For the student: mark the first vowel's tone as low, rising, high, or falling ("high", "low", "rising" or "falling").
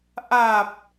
low